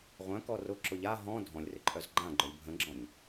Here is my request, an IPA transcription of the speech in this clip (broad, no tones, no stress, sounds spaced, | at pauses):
ʁʷ œ̃ k ɔ r ʊ ǁ ʊ ʎ a ɦ ɔ̃ dʱ ɔ̃ lʲ r ɪ ǃʼ œ z ɡ͡ǃ ã ɡ͡ǃ œ lʲ bʱ ə̃ ɡ͡ǁ ɔ̃ ɲ